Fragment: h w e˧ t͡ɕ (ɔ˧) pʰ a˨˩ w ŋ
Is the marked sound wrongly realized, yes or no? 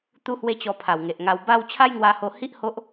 no